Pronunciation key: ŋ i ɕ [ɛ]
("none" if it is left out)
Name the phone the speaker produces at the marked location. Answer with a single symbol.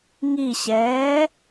ɛː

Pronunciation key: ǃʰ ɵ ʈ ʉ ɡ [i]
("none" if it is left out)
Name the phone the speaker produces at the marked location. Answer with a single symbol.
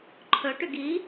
i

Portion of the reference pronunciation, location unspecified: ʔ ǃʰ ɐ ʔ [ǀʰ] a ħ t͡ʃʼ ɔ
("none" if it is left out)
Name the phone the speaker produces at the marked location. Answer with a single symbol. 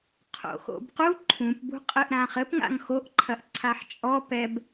ǀʰ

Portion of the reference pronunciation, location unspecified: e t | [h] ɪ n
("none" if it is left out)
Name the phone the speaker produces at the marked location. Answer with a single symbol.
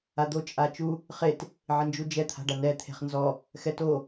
ʕ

